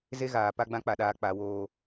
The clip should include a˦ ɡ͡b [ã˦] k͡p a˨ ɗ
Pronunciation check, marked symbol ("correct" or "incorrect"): correct